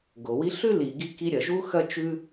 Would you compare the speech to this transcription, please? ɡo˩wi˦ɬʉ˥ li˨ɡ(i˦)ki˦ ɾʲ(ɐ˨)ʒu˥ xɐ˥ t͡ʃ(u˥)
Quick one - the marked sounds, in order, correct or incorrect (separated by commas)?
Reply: correct, correct, incorrect